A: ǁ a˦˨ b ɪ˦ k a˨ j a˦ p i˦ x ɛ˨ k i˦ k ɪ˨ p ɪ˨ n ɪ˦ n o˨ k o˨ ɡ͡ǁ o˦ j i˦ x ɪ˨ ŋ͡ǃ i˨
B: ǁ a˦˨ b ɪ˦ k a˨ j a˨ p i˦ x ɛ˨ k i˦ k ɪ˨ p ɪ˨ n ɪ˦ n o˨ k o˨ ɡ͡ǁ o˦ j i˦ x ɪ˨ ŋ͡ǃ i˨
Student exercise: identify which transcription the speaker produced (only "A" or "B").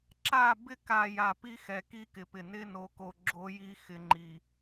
B